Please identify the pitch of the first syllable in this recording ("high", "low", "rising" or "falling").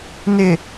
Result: low